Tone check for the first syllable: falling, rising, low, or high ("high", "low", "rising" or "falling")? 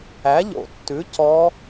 rising